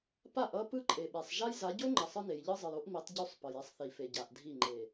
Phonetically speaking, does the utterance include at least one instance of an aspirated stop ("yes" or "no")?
no